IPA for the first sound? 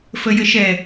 f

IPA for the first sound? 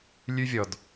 lʲ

